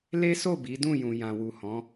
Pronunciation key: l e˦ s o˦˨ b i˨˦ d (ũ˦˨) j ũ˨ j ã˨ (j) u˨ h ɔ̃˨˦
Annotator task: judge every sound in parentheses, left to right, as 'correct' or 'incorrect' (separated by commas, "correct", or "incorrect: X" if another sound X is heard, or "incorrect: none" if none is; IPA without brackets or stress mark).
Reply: correct, incorrect: w